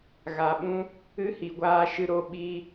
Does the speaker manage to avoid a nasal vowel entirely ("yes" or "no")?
no